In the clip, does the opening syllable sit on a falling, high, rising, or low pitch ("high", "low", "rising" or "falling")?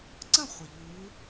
falling